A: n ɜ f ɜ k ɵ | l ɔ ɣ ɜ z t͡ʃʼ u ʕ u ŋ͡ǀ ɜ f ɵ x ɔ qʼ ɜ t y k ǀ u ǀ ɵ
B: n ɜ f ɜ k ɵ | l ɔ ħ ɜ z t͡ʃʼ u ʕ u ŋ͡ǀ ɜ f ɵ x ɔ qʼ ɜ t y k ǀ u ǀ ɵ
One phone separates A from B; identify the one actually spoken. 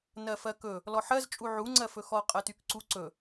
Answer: B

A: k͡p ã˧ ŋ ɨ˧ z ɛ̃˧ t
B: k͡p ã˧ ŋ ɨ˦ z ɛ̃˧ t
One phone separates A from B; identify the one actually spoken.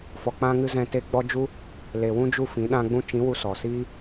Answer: A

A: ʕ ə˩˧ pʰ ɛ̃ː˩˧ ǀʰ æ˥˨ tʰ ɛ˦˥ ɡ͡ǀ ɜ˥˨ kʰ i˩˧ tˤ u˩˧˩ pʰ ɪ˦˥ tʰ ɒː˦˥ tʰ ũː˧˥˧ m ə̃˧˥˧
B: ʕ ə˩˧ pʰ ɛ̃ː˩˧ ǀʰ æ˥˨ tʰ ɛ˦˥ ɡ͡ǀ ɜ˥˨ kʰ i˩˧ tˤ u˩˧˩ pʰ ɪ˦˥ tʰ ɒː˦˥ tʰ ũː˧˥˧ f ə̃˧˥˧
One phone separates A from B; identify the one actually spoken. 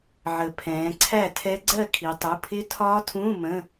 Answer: A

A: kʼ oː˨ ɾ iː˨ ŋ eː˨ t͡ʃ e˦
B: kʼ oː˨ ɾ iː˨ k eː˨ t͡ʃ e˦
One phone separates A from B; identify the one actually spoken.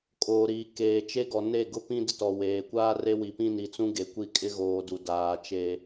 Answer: B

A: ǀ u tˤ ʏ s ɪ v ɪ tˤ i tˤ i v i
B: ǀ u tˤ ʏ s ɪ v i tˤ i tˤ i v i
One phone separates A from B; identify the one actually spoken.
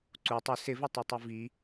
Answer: A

